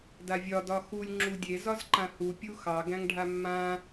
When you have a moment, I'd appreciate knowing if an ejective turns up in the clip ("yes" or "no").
no